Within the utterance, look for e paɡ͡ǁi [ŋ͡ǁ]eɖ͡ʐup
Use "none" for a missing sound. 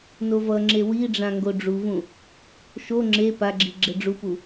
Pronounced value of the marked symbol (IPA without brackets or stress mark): ɡ͡ǁ